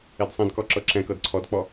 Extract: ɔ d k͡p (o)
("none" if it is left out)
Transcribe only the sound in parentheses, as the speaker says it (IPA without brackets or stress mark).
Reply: ɔ